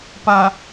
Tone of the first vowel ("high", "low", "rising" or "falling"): low